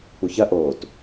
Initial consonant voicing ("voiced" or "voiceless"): voiceless